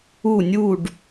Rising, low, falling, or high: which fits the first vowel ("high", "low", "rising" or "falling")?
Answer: falling